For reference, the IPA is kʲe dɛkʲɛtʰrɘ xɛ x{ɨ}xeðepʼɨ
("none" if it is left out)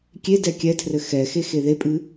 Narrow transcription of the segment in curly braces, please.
e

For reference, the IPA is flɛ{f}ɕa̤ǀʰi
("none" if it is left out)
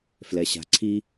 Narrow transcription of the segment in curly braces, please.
none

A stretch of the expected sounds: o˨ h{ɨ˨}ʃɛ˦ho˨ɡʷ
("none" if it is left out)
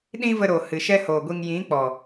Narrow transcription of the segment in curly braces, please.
ɨ˨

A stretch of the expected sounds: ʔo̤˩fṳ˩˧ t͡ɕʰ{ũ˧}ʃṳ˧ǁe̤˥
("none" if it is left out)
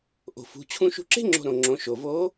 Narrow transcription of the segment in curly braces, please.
ũ˧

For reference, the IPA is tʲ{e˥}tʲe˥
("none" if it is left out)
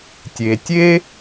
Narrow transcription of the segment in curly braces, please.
e˩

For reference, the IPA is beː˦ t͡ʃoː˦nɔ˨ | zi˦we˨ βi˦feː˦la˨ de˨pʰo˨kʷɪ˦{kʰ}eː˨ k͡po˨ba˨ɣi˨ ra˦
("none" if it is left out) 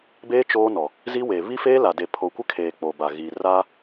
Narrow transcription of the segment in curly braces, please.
kʰ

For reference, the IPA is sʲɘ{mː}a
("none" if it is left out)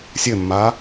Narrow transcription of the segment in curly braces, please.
mː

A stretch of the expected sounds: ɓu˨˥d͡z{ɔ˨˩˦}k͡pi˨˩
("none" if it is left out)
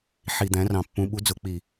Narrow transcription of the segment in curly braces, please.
ʊ˨˩˦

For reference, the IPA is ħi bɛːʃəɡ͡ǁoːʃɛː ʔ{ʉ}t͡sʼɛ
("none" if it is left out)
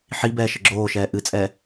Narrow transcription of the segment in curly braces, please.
ɨ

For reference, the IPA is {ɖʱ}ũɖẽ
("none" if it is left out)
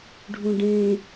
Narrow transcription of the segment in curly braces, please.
ɖʱ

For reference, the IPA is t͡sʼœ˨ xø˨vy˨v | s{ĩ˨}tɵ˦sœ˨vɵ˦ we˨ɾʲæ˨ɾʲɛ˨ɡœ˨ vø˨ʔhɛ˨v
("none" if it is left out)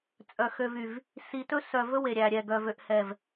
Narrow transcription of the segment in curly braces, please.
i˨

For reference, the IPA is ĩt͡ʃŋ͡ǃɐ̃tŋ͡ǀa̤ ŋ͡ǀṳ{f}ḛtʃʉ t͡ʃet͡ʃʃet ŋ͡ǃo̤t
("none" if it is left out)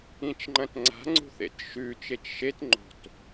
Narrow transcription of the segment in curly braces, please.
θ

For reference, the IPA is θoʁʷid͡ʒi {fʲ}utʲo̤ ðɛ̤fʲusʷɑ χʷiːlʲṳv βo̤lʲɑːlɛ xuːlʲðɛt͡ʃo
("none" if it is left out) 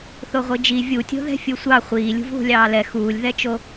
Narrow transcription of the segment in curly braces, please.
vʲ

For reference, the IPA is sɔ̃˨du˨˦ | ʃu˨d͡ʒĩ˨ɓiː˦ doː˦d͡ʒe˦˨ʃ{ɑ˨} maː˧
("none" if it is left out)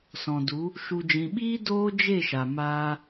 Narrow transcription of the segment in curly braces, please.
a˨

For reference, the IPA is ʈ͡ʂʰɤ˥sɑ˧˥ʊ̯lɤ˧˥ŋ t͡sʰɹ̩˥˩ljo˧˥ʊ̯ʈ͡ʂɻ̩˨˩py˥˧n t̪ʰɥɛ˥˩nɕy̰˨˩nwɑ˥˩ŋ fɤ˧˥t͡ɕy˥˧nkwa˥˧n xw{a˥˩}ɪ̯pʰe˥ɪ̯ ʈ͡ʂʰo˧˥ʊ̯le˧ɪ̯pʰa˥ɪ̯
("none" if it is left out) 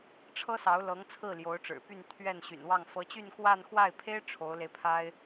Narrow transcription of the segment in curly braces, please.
a˥˩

